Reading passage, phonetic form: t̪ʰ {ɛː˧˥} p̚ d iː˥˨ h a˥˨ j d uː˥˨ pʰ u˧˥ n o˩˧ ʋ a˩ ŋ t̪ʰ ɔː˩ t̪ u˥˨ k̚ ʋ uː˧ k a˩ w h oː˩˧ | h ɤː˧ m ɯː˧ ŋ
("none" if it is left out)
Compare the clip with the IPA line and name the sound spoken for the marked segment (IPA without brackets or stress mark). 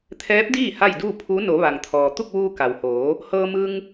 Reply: ɛː˧˥